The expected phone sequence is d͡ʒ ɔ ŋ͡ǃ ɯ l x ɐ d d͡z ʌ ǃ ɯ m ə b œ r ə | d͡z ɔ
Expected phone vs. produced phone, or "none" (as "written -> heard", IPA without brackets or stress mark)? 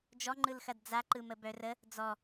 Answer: ʌ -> a